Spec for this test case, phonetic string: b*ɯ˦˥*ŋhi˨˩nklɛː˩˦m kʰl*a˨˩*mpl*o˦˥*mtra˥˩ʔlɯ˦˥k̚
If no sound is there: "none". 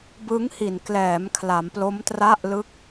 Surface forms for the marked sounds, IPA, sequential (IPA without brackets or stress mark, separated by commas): ɯ˦˥, a˩˦, o˦˥